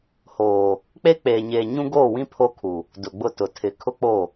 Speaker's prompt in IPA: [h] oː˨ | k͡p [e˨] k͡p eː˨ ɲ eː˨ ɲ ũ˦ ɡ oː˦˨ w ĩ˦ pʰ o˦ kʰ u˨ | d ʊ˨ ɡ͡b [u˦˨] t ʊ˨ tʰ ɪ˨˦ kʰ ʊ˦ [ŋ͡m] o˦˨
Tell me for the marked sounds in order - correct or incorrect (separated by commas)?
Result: correct, incorrect, incorrect, incorrect